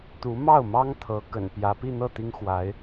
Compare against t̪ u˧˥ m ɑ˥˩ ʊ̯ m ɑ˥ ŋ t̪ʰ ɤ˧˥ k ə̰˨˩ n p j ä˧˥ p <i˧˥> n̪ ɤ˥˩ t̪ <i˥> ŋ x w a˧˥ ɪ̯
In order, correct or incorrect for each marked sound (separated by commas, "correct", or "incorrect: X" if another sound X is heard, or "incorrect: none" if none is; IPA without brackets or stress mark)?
incorrect: i˥˧, correct